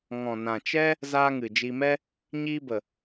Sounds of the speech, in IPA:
ŋ ɔ̃˨ n ã˨ t͡ʃ ɛ˦ | z aː˧ ŋ ɨ˨ d͡ʒ i˧ m ɛ˧ | ɲ iː˧ b ə˨

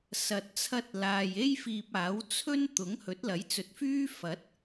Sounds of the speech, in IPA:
s ɐ˨ t̚ t͡sʰ ɐ˧ t̚ l aː˨ j e˥ j f iː˧ p̚ aː˨˥ w t͡sʰ ɵ˥ n t̪ ʊ˨˥ ŋ h ɵ˨˥ t̚ l ɐ˨˥ j t͡s ɵ˨˥ t̚ f yː˥ f ɐ˨˥ t̚

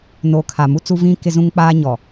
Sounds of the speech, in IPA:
n o˨ kʰ a˨ m u˦ t͡s u˦ v ĩ˦ k ɪ˦ z ũ˦ ŋ k͡p aː˦ ɲ ɔ˨

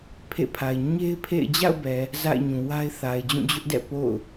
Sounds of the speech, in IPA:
pʰ ḛ˦˨ pʰ a˨ ɪ̯ ɲ e˦ ɪ̯ pʰ ḛ˦˨ ɪ̯ d͡ʑ a̰˦˨ ʊ̯ b ɛ˨ | z a̰˦˨ ɪ̯ ɲ ũ˨ w a˦ ɪ̯ θ a˨ ɪ̯ d͡ʑ ũ˦˨ d͡ʑ ʊ˦ ʔ d ɛ̰˦˨ p o̰˦˨ ʊ̯

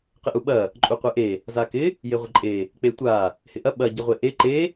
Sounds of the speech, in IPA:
q ɪ ʔ u ɓ ɐ | ǃʼ u qʷ e ʔ e | z a k ɪ | j e ʁʷ ɪ ǃʼ e | k͡p e tʷ a | h ɪ ʔ ɐ ɓ ɐ ɟ ɪ ʁʷ e ʔ e ǃ e

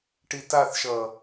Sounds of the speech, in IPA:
ʈ i t a θ ʃ ʌ

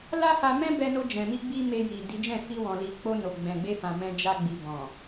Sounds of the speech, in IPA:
l a˦ h a˧ m ɛ̃˦ b ɛ˧ n o˧ d͡ʒ ɛ̃˨ m i˧ ɡ͡b i˦ m e˧ j i˨ d i˨˦ d͡ʒ ɛ̃˦˨ f i˧ w ɔ̃˨ l i˨ k͡p o˧ n o˨ ɡ͡b ɛ̃˨ ɡ͡b e˧ f ã˨ m ɛ̃˧ d͡ʒ a˧ ɡ͡b i˨ b ɔ̃˨

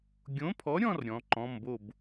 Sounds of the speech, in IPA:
ɡʲ õ˨˥ pʰ ɔ˨˥ ɾʲ ɔ̃˥˧ r ɾʲ ɔ̃˨˥ ǃ ɔ̃˧˥˧ m b o˥˧ b

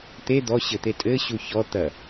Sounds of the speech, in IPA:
t̪ e d̪ ɔ ɕ ɘ t̪ e tʼ ɘ ɕ u ç ɔ t̪ ɐ

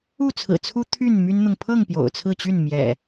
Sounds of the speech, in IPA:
u˥˨ t͡sʰ ɹ̩˨˩ t͡sʰ u˦ t̪ʰ y˥˨ n m y˦ n n̪ ʊ˨ ŋ pʰ ɤ˥˨ ŋ p j o̰˨˩ ʊ̯ t͡sʰ ɹ̩˥˨ t͡ɕ y˥˨ n m j ɛ̰˨˩

